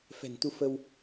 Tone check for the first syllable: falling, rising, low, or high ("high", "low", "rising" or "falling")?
low